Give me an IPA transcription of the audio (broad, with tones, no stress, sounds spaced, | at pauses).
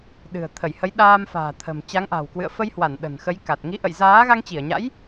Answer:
ɗ ɨ̤˨˩ ə̯ t̪ʰ ə˧˩ j h ə˨˦ j ɗ aː˧ m f a̤ː˨˩ t̪ʰ ə̤˨˩ m t͡ɕ a˨˦ ŋ ʔ a̤˨˩ w k w ɨ̰˧˨ ə̯ f ə˧ j h w a˧˩ n ɗ ə̤˨˩ n x ə˨˦ j k a˨˩ t̚ ŋ i˨˦ ʔ ə̰˧˨ j z aː˨˦ ɣ a˧ ŋ t͡ɕ i˧˩ ə̯ ɲ a̰˧˥ j